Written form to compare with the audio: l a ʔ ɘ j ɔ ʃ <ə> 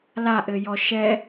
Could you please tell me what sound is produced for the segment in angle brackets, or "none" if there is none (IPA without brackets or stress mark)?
ɛ